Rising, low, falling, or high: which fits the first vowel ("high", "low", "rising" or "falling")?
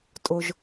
low